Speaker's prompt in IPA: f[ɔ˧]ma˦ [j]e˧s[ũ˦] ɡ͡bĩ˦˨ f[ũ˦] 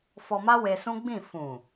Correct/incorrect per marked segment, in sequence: correct, incorrect: w, correct, incorrect: ũ˨

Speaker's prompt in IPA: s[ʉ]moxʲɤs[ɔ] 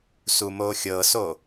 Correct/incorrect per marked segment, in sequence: incorrect: u, incorrect: o

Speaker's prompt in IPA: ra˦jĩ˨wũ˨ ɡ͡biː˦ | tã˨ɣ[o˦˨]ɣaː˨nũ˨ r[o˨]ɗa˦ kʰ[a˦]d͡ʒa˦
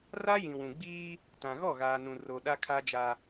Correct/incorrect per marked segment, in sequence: incorrect: ɔ˦˨, correct, correct

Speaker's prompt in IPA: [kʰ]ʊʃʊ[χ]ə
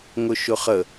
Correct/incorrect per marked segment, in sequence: incorrect: ŋ, correct

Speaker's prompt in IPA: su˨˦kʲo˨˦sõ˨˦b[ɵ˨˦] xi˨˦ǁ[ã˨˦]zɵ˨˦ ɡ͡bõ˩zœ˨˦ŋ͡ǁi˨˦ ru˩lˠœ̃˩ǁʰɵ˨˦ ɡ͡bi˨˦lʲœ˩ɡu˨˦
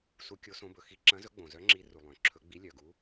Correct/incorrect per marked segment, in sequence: incorrect: ɵ˩, incorrect: ɐ̃˨˦

